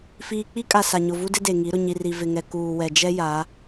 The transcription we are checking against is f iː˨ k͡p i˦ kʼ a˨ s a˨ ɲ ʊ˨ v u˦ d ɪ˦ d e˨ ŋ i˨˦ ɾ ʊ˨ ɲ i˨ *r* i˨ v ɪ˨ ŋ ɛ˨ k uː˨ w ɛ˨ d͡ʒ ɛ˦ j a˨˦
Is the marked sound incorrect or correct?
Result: correct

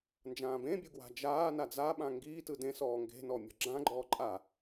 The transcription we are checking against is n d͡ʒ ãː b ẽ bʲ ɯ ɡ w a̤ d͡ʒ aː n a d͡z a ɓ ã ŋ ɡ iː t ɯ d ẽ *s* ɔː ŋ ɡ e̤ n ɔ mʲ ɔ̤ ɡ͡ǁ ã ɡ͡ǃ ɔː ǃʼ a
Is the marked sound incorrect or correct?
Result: correct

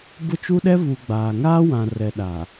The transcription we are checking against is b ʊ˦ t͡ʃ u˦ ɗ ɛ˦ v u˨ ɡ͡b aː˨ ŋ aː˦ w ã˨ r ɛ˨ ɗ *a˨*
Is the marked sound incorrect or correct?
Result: correct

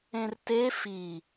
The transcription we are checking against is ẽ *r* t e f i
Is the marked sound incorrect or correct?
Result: correct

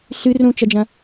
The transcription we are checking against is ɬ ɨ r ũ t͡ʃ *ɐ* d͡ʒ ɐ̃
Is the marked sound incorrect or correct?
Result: correct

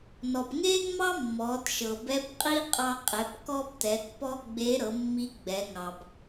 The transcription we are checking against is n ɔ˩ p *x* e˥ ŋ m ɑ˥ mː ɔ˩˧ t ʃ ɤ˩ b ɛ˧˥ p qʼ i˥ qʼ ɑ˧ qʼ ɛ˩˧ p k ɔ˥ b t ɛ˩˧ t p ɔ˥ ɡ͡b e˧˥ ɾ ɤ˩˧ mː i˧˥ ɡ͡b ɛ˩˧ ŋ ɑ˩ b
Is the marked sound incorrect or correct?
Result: incorrect: ŋ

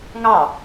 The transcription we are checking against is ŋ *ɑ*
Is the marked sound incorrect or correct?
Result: correct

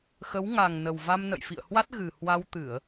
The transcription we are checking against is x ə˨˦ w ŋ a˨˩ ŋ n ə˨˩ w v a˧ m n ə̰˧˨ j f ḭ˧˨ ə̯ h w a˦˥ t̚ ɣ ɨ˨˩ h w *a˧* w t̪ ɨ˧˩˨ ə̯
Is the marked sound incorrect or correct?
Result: correct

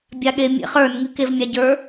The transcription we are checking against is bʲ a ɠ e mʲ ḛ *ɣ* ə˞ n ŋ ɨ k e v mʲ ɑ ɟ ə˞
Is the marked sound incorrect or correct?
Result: incorrect: χ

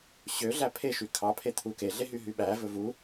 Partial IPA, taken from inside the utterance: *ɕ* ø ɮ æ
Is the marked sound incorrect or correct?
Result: correct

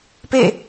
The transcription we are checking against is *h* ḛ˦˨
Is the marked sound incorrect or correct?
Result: incorrect: p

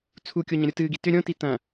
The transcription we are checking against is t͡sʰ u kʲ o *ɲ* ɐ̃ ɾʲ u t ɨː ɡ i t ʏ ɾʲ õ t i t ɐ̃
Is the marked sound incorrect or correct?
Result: correct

